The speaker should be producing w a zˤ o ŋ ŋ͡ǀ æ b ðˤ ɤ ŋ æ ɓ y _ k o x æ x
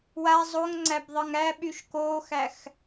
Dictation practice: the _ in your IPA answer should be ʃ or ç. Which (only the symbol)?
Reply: ʃ